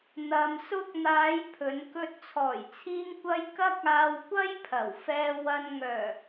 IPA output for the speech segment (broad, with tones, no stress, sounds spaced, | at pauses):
n̪ ɐ˧ m s ʊ˥ k̚ n̪ aː˨˧ j pʰ ɵ˨˧ n k ɵ˧ t̚ t͡sʰ ɔː˨˩ j t͡sʰ iː˧ ŋ kʷ ɐ˧ j k ɐ˥ k̚ aː˧ w kʷ ɐ˥ j pʰ ɐ˨˩ w f ɛː˧ w ɐ˧ n ŋ œː˨˩